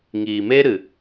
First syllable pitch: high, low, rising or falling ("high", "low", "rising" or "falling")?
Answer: low